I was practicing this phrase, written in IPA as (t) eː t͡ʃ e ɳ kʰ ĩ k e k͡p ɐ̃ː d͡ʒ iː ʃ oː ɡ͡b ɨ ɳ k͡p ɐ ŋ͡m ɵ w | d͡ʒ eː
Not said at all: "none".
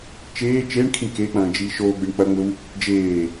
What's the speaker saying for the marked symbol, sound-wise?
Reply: t͡ʃ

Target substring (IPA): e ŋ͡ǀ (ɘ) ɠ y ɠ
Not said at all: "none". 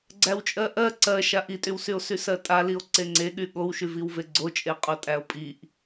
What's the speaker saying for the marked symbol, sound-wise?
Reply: e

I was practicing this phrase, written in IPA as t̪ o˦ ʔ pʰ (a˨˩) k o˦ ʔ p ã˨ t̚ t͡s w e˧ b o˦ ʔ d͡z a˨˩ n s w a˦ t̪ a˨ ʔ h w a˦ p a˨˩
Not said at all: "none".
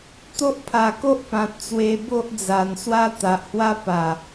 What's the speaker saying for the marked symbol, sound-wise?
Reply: a˨˩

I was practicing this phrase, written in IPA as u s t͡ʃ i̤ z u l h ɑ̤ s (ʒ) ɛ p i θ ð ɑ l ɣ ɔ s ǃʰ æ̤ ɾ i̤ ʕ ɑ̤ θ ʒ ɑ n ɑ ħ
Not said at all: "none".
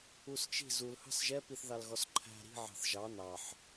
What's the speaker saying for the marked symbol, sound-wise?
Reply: ʒ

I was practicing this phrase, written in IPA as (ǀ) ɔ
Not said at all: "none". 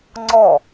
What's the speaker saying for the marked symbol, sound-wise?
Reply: ŋ͡ǀ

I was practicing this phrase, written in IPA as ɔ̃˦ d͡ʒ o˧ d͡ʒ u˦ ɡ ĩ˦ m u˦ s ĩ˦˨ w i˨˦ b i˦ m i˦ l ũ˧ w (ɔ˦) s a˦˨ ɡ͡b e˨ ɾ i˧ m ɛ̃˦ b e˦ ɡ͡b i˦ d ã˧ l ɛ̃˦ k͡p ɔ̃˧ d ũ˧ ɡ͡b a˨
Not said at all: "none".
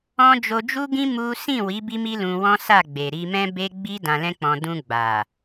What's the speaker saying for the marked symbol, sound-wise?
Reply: ɔ̃˦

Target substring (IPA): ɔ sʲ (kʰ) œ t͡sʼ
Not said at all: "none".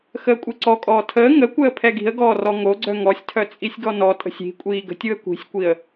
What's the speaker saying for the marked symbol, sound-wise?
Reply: tʰ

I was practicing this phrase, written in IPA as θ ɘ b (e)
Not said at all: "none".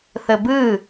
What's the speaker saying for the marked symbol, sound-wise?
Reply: ɨ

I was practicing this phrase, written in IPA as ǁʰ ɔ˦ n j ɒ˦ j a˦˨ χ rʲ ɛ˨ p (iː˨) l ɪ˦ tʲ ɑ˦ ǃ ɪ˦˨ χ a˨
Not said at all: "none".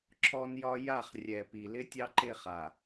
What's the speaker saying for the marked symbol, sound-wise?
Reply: i˨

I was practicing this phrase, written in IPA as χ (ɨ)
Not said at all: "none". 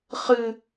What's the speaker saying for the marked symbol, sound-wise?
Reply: ɨ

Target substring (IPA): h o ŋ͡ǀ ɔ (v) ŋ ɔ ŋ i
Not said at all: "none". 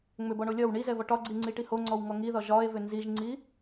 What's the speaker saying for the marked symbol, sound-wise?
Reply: w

